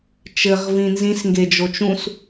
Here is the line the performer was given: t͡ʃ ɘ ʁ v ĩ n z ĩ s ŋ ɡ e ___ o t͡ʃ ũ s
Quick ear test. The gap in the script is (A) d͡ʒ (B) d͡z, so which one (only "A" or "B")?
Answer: A